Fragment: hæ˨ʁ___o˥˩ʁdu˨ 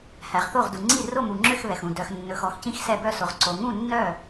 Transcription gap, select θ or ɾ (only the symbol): θ